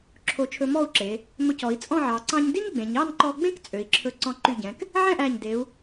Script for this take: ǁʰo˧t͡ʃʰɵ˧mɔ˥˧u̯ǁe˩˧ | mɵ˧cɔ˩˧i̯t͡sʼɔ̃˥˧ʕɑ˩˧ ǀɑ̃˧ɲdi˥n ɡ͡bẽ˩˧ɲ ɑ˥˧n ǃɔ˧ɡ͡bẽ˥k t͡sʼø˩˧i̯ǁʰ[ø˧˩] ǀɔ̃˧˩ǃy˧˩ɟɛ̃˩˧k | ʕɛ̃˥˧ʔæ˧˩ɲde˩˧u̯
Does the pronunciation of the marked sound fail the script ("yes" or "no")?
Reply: yes